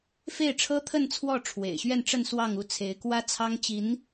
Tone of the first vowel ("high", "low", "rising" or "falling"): falling